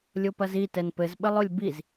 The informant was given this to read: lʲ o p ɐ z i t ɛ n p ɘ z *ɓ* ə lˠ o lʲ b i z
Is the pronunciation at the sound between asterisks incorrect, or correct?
correct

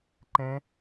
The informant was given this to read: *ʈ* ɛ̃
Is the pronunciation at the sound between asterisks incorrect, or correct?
incorrect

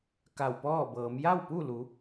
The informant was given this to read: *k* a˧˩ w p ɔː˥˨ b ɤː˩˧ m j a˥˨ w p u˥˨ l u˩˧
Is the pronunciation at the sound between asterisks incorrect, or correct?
correct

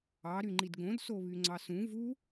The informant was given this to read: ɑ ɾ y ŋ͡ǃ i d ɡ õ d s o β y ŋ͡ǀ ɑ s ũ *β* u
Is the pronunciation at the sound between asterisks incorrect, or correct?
incorrect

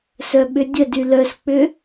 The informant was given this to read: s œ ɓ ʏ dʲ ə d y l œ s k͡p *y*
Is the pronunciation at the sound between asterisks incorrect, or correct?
incorrect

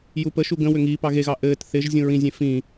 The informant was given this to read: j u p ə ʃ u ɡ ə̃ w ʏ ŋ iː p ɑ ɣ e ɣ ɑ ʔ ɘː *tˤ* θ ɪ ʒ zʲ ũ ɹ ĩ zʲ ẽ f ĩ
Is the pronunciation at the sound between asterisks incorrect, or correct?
incorrect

